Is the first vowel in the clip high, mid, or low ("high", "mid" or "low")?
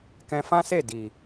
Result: mid